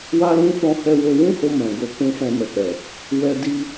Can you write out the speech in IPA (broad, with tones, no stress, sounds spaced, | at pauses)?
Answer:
w a˦ l ũ˦ f ɔ̃˦ h ɛ˧ w o˧ w ũ˦ h o˧ m ɛ̃˨ ɡ o˧ k ũ˧ f ɛ̃˧ m ɛ˨ k͡p ɛ˨ | w ɛ˦ d i˦